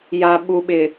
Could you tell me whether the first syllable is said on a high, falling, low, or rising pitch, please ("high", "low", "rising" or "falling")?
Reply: low